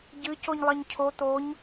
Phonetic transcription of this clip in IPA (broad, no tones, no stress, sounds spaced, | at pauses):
ɟ ɨ c o ɲ lˠ ɐ ɲ cʰ o t̪ o ɲ